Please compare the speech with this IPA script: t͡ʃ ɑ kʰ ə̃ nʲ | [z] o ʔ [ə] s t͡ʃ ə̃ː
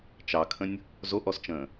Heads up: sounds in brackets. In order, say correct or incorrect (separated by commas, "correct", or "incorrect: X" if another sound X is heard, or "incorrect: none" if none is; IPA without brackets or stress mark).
correct, incorrect: ɔ